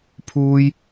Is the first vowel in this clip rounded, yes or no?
yes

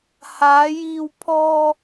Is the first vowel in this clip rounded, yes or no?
no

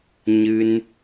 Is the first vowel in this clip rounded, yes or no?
no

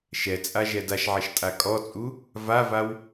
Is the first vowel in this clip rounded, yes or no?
no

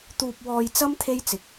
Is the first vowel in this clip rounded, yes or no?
yes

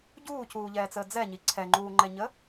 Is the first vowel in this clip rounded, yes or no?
yes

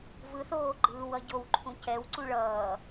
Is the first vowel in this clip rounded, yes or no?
no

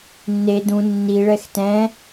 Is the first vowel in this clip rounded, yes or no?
no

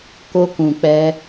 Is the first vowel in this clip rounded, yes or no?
yes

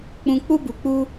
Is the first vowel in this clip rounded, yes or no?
yes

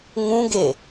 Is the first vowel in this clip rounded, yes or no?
yes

